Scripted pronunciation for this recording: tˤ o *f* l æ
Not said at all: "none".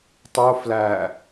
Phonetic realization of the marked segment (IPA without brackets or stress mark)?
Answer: f